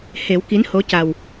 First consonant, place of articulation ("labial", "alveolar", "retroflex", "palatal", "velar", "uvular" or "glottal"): glottal